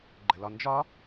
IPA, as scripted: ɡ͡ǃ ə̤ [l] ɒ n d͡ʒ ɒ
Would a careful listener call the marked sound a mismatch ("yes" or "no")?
no